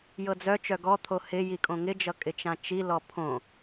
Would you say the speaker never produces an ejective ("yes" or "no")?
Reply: no